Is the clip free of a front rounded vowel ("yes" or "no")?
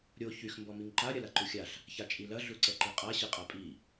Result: no